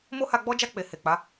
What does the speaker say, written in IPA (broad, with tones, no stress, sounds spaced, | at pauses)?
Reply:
m o˦ h a˧ ɡ͡b ɔ˦ d͡ʒ a˦˨ k͡p e˨ h e˨ k͡p a˨˦